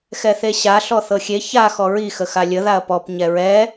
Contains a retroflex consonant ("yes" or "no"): no